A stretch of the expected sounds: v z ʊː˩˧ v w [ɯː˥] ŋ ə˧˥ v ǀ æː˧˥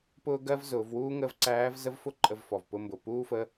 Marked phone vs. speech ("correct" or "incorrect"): incorrect